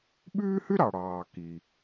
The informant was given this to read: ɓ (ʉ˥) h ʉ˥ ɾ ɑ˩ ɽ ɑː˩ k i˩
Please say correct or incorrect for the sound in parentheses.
incorrect